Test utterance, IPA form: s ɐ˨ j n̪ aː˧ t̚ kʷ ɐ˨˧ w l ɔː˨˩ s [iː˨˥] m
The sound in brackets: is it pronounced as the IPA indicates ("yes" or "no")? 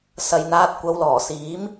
yes